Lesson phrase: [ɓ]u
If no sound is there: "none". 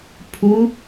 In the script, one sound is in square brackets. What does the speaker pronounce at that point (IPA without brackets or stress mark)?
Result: pʰ